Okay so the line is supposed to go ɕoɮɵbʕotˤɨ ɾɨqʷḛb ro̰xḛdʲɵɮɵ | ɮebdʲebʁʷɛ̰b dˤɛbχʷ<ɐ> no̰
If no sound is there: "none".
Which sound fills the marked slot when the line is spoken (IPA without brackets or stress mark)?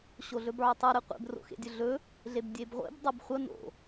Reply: ɐ